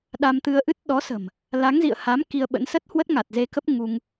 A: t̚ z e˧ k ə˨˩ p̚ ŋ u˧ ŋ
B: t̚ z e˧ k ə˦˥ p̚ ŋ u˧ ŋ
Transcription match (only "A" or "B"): B